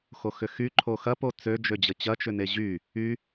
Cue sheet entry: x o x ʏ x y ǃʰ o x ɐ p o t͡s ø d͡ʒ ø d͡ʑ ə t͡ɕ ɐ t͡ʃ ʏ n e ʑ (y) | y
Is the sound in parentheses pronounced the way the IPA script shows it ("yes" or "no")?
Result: yes